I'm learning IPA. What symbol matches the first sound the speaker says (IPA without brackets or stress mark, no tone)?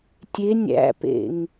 tʲ